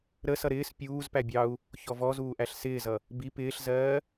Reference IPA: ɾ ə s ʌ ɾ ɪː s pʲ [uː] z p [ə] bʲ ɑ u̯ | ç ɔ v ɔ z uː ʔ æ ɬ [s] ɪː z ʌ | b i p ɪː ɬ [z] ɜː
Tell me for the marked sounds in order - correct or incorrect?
correct, incorrect: æ, correct, correct

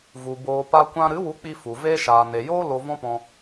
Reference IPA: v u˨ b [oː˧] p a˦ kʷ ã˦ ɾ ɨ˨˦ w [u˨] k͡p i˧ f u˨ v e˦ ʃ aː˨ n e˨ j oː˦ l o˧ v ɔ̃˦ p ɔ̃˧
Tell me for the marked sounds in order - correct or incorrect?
correct, incorrect: u˨˦

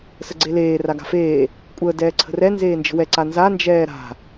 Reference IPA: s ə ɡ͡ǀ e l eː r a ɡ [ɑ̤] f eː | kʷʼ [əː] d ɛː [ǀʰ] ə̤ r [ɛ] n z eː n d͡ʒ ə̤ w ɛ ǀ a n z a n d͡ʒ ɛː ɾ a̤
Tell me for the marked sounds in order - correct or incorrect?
incorrect: a̤, correct, correct, correct

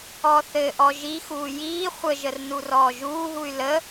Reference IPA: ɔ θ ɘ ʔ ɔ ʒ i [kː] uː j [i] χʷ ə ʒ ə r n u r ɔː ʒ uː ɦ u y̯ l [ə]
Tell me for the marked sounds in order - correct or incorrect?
incorrect: x, incorrect: iː, correct

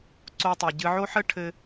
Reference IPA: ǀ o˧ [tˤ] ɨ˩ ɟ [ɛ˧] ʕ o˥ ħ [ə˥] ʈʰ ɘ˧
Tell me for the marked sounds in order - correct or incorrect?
correct, incorrect: ɨ˧, correct

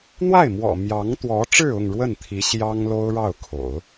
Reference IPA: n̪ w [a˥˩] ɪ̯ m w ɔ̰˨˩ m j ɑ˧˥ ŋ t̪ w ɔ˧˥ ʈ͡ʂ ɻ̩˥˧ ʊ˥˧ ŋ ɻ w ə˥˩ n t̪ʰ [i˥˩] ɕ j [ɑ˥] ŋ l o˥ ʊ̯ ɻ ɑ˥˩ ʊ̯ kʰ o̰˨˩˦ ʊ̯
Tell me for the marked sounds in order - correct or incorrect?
correct, incorrect: i˧˥, correct

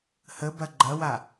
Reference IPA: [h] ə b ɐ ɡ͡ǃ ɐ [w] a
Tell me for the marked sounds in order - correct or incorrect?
correct, correct

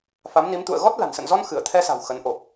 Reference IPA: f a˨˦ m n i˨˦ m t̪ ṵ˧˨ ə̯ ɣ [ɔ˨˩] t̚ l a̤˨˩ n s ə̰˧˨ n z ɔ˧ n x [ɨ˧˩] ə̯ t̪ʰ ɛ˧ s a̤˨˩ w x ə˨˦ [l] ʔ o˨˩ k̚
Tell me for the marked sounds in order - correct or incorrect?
incorrect: ɔ˦˥, correct, incorrect: n

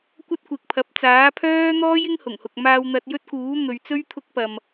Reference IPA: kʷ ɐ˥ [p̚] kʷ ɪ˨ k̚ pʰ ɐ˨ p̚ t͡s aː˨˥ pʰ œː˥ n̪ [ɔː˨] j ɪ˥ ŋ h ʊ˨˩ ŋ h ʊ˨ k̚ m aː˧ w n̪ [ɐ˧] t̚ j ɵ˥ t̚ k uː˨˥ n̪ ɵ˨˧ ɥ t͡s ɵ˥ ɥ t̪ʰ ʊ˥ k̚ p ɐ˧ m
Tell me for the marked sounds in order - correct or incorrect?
incorrect: t̚, incorrect: ɔː˥, correct

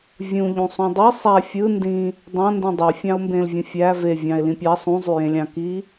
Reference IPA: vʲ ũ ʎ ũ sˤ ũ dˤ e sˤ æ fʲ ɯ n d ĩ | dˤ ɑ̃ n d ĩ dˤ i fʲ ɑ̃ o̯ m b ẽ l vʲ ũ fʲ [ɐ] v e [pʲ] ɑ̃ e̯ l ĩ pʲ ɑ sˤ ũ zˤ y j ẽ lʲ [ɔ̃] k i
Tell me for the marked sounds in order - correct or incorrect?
incorrect: æ, incorrect: vʲ, incorrect: ɑ̃

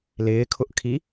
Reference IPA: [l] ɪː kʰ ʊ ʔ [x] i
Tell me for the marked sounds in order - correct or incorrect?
correct, incorrect: kʰ

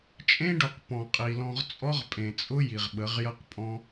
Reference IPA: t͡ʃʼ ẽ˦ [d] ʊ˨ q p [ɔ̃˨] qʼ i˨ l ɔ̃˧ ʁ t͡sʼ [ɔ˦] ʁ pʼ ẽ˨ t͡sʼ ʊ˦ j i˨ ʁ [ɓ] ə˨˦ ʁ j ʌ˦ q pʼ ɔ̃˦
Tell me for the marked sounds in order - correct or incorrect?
incorrect: ɖ, correct, correct, correct

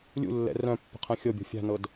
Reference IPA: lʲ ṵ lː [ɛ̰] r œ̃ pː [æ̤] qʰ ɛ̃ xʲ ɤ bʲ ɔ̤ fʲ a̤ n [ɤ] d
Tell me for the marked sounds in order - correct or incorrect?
correct, incorrect: ə̤, correct

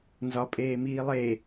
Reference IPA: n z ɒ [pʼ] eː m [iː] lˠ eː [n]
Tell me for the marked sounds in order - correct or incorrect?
correct, correct, incorrect: none

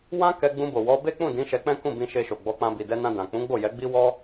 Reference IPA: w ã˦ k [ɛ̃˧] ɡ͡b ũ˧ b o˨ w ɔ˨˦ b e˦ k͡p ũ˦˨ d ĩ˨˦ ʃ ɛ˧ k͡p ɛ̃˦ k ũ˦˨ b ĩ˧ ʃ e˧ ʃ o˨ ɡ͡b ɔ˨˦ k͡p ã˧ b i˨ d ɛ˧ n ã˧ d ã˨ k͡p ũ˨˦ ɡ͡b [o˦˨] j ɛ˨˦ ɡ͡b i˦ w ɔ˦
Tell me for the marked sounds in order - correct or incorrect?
incorrect: ɛ˧, correct

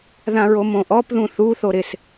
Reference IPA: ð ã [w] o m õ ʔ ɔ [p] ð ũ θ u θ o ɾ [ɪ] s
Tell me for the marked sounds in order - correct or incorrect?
incorrect: ɹ, correct, correct

